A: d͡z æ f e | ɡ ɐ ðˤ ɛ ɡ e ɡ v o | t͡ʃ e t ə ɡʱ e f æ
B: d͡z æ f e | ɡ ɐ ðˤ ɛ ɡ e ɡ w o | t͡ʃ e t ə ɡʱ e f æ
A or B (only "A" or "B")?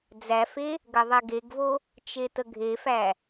A